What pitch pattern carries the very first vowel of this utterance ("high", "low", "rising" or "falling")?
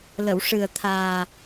low